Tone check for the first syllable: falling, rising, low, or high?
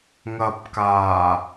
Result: low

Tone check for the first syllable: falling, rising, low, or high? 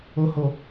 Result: low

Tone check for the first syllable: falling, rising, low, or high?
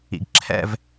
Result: low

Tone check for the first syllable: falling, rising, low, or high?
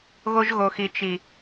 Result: high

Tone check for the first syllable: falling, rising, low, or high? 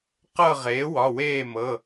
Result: falling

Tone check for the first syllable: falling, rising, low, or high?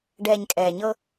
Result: low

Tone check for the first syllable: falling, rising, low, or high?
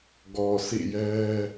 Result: low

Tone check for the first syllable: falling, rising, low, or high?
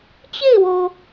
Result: falling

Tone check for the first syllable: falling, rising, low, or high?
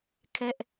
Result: high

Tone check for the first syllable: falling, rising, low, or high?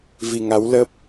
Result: low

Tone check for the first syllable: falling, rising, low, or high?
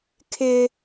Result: high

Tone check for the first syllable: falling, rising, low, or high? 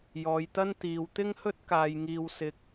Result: low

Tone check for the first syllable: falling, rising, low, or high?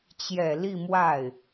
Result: low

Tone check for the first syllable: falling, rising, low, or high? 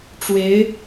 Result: rising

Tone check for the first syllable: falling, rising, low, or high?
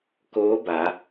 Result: rising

